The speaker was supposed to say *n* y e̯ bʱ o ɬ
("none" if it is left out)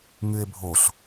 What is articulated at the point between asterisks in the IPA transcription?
ŋ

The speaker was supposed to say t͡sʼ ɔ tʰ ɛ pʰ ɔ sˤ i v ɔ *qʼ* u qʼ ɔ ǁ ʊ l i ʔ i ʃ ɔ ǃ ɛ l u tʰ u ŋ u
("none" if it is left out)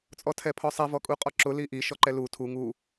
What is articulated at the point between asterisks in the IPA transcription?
kʼ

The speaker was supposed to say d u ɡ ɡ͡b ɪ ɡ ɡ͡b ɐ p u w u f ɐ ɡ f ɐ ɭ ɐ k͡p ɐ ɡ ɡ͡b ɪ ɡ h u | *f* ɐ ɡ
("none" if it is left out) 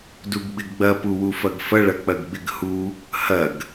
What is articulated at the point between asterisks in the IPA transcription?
h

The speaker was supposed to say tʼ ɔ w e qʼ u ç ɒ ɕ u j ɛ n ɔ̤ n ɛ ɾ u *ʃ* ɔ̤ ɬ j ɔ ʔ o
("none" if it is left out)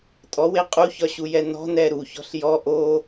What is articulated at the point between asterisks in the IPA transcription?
ç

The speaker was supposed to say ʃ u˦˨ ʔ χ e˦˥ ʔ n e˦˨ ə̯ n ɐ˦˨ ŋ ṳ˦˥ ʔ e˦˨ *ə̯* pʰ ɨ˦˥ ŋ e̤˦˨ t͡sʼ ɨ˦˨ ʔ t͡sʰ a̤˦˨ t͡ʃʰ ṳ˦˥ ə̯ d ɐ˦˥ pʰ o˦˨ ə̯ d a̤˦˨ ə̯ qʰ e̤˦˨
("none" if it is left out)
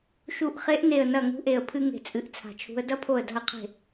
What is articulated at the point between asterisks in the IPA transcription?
ə̯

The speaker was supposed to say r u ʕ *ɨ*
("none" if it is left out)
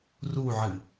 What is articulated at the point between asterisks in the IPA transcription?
ɨ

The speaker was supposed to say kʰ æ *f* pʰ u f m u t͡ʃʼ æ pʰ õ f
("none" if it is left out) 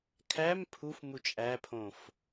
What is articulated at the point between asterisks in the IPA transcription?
m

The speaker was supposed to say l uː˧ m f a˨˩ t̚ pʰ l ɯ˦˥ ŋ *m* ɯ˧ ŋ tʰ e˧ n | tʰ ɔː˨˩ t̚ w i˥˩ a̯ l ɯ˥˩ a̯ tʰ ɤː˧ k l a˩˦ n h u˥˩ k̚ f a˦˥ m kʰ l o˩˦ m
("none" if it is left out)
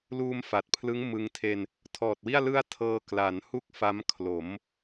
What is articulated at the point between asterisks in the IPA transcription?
m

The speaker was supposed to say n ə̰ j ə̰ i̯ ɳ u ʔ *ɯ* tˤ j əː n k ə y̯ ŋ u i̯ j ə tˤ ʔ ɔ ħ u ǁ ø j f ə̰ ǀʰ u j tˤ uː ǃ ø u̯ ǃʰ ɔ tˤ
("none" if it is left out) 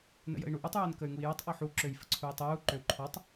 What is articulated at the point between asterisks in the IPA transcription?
u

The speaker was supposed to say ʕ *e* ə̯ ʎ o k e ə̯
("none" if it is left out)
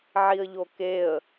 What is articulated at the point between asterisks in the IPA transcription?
i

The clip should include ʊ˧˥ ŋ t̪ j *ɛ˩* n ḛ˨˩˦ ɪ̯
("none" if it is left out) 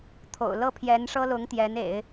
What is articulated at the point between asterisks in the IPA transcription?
ɛ˧˥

